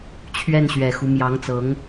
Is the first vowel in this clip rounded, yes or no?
no